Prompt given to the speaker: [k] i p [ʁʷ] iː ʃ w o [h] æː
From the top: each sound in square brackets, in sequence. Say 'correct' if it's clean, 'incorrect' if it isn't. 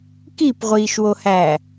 correct, correct, correct

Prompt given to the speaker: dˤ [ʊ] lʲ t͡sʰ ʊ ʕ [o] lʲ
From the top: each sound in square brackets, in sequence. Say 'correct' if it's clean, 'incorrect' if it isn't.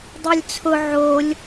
incorrect: ɵ, correct

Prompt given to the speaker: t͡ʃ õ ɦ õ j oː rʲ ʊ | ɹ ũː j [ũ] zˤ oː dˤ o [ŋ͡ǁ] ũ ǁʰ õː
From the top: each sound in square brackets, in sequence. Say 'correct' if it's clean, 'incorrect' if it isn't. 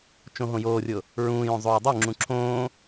incorrect: õ, correct

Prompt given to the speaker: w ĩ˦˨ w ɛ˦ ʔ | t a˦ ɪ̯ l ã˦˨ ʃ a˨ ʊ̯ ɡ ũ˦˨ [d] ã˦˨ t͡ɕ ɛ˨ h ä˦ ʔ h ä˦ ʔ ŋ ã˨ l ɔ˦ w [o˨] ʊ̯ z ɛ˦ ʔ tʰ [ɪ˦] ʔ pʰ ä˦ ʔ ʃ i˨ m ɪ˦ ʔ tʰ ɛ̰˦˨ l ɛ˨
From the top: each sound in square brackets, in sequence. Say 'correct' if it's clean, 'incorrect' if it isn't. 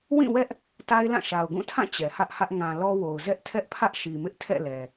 incorrect: tʰ, correct, incorrect: ɛ˦

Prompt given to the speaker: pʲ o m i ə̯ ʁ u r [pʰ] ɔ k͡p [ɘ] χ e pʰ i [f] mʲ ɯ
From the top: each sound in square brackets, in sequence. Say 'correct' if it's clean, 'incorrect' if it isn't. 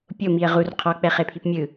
incorrect: qʰ, incorrect: ɛ, incorrect: p

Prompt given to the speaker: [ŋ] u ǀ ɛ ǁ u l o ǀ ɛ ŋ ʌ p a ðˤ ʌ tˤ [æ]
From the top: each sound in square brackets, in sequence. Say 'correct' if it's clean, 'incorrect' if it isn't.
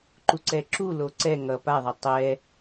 incorrect: ǃ, incorrect: ɛ

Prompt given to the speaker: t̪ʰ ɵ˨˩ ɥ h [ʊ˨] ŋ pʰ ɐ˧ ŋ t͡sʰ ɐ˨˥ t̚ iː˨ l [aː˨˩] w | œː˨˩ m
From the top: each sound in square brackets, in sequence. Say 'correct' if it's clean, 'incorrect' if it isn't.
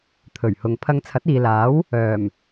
correct, incorrect: aː˨˥

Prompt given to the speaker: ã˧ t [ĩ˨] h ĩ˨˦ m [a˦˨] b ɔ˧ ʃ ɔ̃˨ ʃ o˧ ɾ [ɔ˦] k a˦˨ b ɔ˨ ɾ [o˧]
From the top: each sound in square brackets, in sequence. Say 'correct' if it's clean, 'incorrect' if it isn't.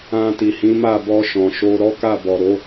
incorrect: i˨, correct, correct, incorrect: o˨˦

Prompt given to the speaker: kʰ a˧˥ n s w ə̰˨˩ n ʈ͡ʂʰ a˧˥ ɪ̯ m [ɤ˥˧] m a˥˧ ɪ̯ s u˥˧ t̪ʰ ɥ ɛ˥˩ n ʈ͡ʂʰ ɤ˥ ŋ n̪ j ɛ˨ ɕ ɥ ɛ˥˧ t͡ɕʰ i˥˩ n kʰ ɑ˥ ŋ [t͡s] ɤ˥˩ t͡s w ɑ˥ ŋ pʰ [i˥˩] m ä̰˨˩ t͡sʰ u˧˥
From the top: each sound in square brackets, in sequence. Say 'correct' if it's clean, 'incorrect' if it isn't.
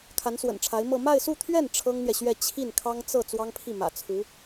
correct, correct, correct

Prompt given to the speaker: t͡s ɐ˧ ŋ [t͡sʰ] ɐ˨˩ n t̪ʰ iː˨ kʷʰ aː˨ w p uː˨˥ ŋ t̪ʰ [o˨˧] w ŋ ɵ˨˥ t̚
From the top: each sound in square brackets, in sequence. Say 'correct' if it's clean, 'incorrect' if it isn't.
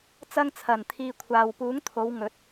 correct, correct

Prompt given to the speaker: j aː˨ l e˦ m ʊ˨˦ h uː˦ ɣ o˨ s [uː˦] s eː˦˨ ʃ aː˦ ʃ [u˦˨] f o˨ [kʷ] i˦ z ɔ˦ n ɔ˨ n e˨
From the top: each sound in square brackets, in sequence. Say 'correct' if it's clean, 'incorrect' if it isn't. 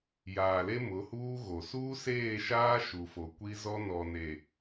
correct, incorrect: u˨, correct

